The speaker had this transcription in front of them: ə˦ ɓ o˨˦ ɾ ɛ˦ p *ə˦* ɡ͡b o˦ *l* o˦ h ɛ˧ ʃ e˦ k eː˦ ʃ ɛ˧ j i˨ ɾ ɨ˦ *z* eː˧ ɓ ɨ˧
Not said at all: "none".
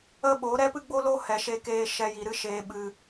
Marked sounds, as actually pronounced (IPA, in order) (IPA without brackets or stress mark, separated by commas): ɨ˦, l, ʃ